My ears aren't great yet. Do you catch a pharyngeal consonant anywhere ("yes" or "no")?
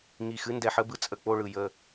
yes